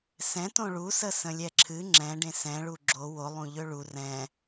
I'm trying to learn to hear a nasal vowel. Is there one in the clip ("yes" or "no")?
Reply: yes